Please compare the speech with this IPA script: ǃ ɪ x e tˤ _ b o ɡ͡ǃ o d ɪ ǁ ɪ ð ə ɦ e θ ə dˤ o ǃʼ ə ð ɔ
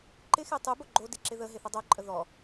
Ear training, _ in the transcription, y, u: y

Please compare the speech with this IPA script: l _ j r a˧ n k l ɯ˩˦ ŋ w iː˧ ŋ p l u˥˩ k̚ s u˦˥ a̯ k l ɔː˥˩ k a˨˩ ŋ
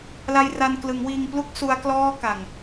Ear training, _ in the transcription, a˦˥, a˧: a˧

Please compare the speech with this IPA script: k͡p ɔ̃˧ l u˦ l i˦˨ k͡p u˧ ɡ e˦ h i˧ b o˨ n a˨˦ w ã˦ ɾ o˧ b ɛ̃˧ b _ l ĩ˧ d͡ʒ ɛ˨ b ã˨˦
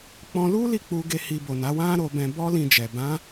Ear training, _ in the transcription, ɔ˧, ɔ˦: ɔ˦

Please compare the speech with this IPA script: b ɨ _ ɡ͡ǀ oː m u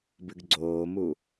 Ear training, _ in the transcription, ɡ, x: ɡ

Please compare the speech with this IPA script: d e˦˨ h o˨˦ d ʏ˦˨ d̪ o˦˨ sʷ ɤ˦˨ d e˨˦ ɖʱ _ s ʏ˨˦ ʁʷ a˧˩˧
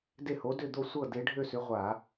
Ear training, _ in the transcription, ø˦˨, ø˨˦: ø˦˨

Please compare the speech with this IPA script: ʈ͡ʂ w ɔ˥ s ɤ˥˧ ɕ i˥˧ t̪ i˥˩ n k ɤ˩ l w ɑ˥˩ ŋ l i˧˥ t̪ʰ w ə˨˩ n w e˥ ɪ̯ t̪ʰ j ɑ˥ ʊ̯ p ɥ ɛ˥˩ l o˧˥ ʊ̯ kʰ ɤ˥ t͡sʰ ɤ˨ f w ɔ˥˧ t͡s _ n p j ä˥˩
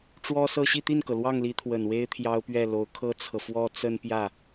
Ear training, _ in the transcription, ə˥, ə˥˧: ə˥˧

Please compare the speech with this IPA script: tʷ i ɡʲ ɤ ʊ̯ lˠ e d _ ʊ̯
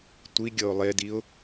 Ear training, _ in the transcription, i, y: i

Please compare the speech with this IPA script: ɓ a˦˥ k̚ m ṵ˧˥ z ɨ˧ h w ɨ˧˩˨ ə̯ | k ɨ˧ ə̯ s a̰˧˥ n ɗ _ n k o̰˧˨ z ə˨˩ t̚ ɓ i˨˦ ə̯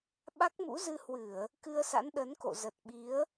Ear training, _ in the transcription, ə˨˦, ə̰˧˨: ə˨˦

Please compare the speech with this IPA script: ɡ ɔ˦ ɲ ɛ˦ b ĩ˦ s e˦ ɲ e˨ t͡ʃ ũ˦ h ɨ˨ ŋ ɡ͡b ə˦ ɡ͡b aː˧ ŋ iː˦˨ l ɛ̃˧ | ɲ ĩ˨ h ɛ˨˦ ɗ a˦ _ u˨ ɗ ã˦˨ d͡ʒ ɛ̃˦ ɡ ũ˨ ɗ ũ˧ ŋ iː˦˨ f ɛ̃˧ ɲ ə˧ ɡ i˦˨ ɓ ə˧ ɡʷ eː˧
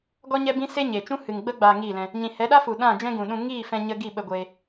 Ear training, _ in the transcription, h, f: f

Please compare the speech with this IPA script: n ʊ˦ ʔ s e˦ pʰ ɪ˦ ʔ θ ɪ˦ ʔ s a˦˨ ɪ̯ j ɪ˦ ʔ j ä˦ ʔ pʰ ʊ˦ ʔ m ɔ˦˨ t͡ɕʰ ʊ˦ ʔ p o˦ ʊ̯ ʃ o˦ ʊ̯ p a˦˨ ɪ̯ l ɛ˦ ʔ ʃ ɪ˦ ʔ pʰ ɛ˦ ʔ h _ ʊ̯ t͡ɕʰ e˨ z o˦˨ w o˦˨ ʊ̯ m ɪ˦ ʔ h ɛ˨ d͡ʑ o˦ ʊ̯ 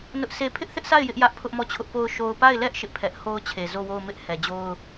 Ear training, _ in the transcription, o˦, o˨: o˦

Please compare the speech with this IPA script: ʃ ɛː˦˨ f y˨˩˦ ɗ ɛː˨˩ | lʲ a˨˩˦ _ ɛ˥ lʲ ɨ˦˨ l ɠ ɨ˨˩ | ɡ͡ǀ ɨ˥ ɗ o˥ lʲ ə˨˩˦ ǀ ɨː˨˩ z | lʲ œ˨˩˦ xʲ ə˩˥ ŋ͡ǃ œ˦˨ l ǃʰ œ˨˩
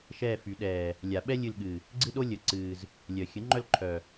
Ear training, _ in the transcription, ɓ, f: ɓ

